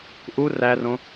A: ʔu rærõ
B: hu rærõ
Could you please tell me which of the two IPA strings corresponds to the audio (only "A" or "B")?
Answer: A